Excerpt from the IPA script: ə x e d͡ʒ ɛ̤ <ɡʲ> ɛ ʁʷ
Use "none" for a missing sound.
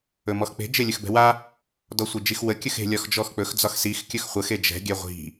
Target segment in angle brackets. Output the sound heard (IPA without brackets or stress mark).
ɡʲ